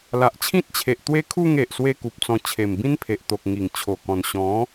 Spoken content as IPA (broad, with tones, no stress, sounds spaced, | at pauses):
l a˨ ʔ t͡ɕʰ ĩ˦ t̚ t͡ɕʰ e˨ ʔ t̪ w e˦ kʰ u˥˧ ŋ e˨ ʔ s w e˦ k u˨ p̚ t͡s ɔ̃˧ t͡ɕʰ e˨˩ m b ĩ˦ n pʰ e˨ ʔ t̪ o˨ k̚ ŋ i˨˩ ŋ t͡ɕʰ o˨˩ k ɔ̃˨˩ n ɕ ɔ̃˨˦